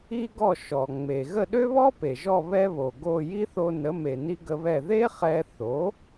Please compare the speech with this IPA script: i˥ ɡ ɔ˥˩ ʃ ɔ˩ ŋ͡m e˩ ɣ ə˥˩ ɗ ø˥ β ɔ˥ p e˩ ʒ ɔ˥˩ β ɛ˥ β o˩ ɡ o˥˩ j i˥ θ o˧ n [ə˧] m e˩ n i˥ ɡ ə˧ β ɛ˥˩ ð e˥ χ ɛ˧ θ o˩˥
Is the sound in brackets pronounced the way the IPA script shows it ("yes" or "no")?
no